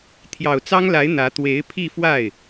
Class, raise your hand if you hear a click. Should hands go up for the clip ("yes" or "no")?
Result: no